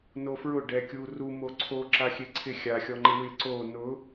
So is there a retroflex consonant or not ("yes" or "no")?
yes